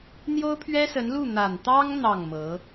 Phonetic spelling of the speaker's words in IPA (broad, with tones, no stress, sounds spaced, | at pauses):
n̪ j o˥ ʊ̯ pʰ ɥ ɛ˥ s ə˧˥ n l u˥˩ n̪ a˨˩ n t̪ ɑ˥ ŋ n̪ ɑ˥˩ ŋ m ɤ˧˥